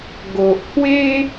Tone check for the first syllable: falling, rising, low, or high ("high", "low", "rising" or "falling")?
low